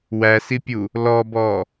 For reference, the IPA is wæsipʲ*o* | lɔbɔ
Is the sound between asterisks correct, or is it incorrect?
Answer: incorrect: u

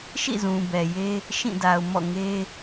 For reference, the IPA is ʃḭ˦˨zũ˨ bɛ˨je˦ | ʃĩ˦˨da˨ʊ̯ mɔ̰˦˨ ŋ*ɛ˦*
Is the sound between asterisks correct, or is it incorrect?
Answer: incorrect: e˦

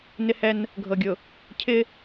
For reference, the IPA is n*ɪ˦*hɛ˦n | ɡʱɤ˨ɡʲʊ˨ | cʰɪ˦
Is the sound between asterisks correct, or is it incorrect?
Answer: correct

